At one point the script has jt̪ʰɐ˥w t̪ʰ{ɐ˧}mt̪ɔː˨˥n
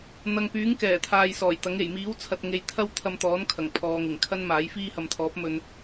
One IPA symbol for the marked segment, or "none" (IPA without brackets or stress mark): ɐ˧